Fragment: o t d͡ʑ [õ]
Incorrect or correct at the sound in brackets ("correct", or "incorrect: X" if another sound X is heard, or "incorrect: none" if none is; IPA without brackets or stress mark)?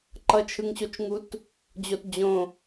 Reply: correct